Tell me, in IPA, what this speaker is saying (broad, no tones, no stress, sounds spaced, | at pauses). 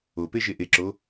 o p e ʒ e ʔ e ǁ o